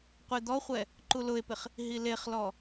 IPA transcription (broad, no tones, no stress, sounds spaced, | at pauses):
qʷ e d̪ ɔ χʷ ɛ | ǃ u l ʊ e̯ p ɪ χ | ɦ i l e χ l ɔ